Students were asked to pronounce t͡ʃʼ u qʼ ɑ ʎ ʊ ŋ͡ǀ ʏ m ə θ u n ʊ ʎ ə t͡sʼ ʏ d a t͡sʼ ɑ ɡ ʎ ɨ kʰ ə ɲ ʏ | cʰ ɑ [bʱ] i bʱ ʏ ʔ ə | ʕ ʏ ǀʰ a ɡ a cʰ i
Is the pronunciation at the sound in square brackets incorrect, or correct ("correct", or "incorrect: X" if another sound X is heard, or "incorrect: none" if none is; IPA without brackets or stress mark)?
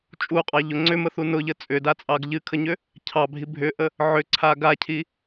correct